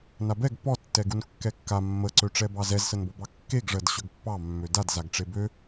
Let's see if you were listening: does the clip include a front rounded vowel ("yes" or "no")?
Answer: yes